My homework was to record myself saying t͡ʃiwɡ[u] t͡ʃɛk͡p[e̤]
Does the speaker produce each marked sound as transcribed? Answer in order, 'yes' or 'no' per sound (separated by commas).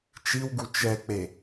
yes, no